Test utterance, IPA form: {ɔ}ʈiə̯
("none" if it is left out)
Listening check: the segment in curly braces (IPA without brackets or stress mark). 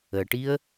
ə